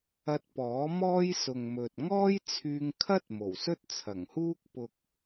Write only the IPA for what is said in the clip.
ɐ˧t̚ pɔː˨˥mɔː˥j sʊ˨ŋmɵ˨t̚ ŋɔː˥jt͡sʰyː˧ŋkʰɐ˥t̚ mo˨˩wsɵ˥t̚t͡sʰɐ˨˩ŋhuː˥k̚ pʊ˨k̚

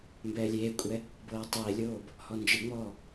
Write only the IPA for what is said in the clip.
mbɛːlʲeːkʷʼɛ | bɤːtˤeːlʲoːb | hɔnd͡ʒɯŋ͡mɔː

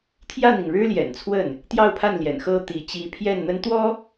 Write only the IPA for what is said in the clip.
t̪ʰjä˥˩n̪i˩ŋ ɻɻ̩˥ljɛ̰˨˩nt͡sʰwə˥˩n | t̪jɑ˥˧ʊ̯pʰa˥˩nljɛ̰˨˩n xɤ˥t̪i˧˥ t͡ɕi˧˥pʰjɛ˥˩nn̪ə˥nt̪wɔ˥

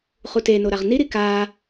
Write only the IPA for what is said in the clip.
χuteno ɾaʁniɾi ka

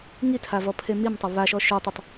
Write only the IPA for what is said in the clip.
ŋitʰavɔ pʰemimtˤə βaʃɔ ʃøtˤitˤ

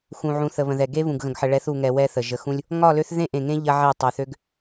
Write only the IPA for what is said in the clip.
xũ˨ʕũ˨ θə˨βə̃˨ðɛ˨ ɡe˦βũ˨ɡɣə̃˨ɡħə˨ ɭɛ˨˦θu˨ŋɛ˨ wɛ˦θə˨ ʒə˨xũ˦lʲ | ŋɒ˦˨lø˦θ ðẽ˦ʔẽ˨ŋẽ˦ ʎɐ˦ ʕe˦˨tˤœ˨ θø˦ɡ

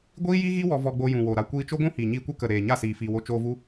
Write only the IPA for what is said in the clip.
ɡʷiː˦ji˦ɣi˦ wɔ˧vɔ˧ɡ͡bo˧jũ˨ wo˨ɾa˧ kʷiː˧t͡ʃo˦ɡʷũ˦ hiː˨ɲiː˧kʷɛ˦ kə˨ɾeː˨ ɲa˦˨siː˨fiː˨wo˧ t͡ʃoː˧vu˧

